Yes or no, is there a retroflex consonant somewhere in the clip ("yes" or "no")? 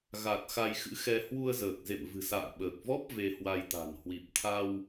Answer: no